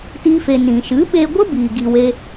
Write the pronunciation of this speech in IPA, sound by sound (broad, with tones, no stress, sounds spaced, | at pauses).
t iː˦ f e˧ n ĩ˨ ʃ ɨ˨˦ ɓ e˧ ɡʷ ə˦ b iː˨ ɡ i˧ w e˦